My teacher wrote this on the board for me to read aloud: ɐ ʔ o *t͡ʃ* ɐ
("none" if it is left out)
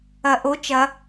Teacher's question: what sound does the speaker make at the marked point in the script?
t͡ʃ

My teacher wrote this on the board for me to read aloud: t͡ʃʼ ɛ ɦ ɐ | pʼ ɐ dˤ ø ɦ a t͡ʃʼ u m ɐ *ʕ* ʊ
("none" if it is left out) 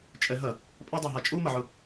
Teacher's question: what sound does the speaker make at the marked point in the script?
ʕ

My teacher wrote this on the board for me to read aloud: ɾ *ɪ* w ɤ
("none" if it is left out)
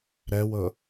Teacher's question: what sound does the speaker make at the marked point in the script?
ɛ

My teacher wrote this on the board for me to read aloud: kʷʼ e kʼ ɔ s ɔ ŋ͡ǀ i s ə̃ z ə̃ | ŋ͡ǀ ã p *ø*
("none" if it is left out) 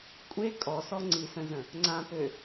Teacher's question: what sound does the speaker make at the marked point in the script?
ø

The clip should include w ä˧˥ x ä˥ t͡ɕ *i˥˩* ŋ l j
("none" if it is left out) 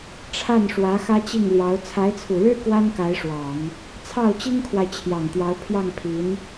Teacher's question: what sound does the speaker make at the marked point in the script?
i˥˩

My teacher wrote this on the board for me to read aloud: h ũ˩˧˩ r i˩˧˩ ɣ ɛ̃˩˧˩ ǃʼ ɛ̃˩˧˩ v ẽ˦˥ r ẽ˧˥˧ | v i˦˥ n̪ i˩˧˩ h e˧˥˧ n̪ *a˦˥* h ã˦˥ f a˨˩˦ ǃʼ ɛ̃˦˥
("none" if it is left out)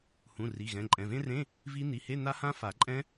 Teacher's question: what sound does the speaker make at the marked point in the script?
a˦˥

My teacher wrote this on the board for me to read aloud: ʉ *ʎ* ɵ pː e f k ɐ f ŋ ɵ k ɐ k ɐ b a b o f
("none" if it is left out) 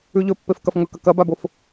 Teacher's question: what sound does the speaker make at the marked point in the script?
ʎ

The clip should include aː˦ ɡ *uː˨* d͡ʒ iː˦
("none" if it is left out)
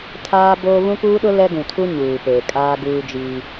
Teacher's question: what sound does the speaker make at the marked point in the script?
uː˦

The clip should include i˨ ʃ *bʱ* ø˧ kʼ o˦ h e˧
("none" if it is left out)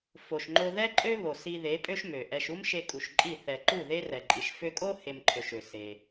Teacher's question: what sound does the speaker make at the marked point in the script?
f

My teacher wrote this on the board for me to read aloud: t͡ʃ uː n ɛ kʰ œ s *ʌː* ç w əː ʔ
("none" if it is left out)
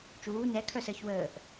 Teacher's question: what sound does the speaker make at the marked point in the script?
əː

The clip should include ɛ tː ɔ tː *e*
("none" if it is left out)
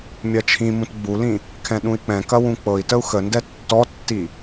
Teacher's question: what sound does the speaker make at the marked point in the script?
i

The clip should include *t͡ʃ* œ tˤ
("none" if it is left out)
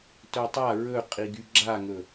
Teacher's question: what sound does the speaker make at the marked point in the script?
t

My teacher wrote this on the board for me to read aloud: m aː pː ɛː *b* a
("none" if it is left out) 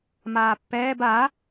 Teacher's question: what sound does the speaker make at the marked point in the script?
b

